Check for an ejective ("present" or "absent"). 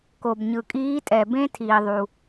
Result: present